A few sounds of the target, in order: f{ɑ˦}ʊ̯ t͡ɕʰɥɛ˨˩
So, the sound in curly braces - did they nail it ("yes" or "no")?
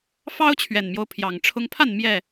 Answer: yes